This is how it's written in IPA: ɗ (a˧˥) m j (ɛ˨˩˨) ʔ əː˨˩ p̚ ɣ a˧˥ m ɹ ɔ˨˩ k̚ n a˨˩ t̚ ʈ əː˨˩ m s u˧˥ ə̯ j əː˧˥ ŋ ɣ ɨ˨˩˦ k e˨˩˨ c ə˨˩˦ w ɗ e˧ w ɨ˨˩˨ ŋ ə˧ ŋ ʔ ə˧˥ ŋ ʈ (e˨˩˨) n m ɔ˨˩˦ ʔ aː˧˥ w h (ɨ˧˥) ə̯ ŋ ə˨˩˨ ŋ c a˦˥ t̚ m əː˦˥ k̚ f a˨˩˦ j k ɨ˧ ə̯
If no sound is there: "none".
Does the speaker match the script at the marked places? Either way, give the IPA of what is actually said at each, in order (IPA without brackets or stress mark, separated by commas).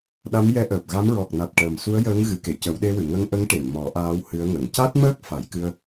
a˧˥, ɛ˧˥, e˨˩˨, ɨ˧˥